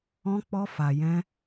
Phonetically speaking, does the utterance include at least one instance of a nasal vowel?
yes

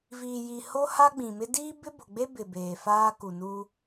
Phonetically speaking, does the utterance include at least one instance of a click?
no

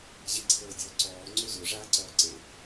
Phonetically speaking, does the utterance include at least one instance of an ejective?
no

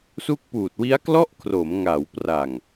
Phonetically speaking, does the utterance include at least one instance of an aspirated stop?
yes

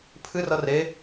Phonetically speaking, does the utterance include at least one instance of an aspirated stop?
yes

